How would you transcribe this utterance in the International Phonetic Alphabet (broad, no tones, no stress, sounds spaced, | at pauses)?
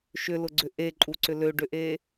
ʃ ʏ l ʊ ɡ͡ǀ ʏ ʔ e ǃʼ u ǀ ʏ l ø ɖ ʏ ʔ e